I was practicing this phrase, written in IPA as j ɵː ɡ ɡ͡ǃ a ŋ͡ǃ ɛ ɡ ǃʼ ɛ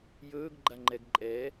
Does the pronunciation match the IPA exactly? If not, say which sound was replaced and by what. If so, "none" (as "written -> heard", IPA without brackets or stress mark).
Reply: none